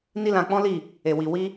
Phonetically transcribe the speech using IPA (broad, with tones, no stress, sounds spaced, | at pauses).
n i˦ l ã˧ k͡p ɔ̃˦ l i˦˨ | e˨ w i˨ w i˧